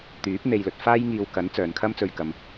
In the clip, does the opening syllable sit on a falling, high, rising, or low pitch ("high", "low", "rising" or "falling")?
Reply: rising